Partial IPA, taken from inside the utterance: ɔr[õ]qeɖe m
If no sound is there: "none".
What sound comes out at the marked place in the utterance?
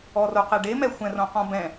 o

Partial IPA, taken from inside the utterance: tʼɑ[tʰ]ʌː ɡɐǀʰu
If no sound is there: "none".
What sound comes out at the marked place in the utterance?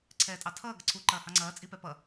tʰ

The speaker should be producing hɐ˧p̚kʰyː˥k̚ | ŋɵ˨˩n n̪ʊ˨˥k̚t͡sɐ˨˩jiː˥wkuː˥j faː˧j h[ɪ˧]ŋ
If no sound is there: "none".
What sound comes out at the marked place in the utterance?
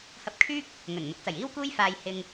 ɪ˧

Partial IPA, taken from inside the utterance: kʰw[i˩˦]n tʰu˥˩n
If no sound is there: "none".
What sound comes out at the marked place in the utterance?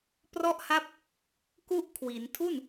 i˩˦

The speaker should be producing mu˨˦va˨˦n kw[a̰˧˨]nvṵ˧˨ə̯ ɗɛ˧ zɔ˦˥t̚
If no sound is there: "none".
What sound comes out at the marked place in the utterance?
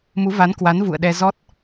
a˨˦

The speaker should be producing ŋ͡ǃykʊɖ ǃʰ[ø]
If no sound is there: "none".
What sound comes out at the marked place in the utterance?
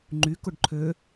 ø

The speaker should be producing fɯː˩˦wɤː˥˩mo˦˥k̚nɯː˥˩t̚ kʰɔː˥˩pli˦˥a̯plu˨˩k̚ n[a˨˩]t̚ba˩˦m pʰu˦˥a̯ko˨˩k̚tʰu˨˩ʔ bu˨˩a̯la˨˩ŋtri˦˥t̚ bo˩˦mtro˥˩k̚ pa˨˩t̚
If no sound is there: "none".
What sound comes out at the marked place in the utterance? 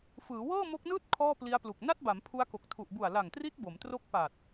a˥˩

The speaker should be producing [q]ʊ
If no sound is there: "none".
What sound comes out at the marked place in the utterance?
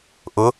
ʔ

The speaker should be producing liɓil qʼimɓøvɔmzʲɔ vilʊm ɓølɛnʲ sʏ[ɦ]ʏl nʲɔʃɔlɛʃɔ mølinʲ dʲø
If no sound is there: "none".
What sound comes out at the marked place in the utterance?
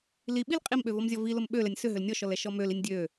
ɦ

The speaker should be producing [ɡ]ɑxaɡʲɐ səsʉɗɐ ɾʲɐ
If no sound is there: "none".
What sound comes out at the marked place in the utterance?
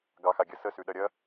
ɡ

